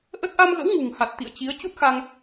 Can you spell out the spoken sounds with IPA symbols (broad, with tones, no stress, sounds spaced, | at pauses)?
ʔ ə˦˥ t̚ ʔ a˧ m ɣ ə̰˧˥ w ŋ ṳ˨˩ ŋ h a˨˩ t̚ t̪ ḭ˧˨ ə̯ t͡ɕ i˨˦ ə̯ t͡ɕ u˦˥ t̚ x a˧ ŋ